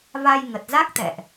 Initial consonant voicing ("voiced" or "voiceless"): voiced